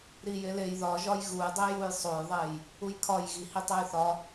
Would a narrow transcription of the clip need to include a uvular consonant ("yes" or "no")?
no